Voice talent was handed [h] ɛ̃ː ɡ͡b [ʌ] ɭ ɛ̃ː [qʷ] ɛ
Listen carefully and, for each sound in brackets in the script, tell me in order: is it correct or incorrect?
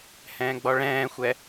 correct, incorrect, incorrect

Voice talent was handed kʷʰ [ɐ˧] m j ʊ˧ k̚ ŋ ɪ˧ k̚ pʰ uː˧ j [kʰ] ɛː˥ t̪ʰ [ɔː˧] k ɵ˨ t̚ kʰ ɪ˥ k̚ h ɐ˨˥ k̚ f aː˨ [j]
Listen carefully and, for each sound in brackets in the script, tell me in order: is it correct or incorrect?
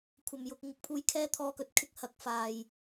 incorrect, correct, correct, correct

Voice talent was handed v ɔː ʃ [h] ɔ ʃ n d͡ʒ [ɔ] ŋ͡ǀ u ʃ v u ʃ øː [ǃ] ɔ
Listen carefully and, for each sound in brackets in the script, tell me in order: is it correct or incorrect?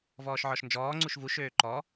incorrect, incorrect, correct

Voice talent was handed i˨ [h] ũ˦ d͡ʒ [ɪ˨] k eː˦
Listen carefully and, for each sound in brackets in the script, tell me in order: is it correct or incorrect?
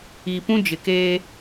incorrect, correct

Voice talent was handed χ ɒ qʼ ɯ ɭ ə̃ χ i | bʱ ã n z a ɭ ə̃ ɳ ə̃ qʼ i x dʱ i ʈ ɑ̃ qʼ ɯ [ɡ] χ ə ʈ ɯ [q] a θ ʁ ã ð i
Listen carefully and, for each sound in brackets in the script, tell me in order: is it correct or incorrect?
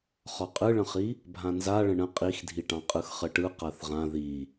incorrect, correct

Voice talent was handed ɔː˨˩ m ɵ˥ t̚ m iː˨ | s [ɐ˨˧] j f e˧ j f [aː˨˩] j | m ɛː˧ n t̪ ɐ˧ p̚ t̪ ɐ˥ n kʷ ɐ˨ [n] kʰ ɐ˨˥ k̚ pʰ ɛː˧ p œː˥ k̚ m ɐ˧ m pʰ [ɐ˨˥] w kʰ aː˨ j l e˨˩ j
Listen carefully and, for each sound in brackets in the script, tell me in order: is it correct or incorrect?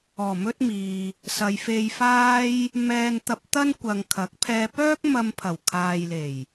correct, incorrect, incorrect, incorrect

